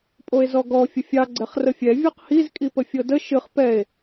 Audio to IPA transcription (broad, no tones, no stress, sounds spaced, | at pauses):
pʼ o e̯ z ɔ ɡ ɔ fʲ ə fʲ ɑ ɡ͡ǀ ɛ χ r ə fʲ ɛ vʲ ɤ q h i z kʼ i p ə fʲ ɤ d ə ʃ ɨ χ p ɛ e̯